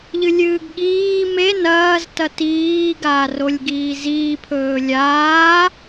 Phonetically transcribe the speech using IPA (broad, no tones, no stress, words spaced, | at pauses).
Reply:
ʎɨlʲɨːɡɠiː me nɐːz tɐtiː ɡaːrolʲɡiːziː pʰɵːlʲaː